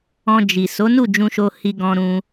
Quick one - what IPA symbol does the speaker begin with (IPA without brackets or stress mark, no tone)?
ɔ̃